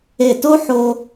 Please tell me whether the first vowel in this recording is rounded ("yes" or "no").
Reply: no